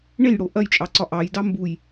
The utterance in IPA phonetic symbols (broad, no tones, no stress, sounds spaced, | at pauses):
ɳ e j ɽ o ʔ ɐ j t͡ʃʼ ɑ ǀ ɒ ʔ ɑ j d ɑ m b u j